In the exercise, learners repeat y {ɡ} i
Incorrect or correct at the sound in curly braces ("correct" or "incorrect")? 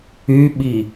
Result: incorrect